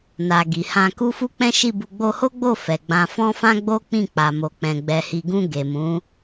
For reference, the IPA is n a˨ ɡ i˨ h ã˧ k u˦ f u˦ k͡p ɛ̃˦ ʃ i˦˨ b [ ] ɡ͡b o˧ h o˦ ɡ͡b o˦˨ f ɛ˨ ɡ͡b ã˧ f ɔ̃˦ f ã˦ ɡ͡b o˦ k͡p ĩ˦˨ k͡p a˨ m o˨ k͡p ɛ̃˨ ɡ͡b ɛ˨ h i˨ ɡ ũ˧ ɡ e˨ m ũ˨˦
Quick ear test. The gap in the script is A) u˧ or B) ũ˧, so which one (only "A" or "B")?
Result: A